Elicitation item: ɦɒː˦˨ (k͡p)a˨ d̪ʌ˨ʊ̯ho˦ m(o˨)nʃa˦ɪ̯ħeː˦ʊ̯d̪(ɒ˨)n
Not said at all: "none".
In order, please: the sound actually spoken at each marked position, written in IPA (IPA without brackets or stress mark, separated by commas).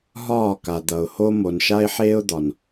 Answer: k, o˨, ɒ˨